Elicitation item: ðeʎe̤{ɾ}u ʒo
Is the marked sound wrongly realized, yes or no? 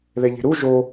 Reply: no